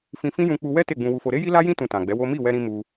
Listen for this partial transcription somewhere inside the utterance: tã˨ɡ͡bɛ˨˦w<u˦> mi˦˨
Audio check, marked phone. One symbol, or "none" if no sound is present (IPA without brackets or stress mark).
o˦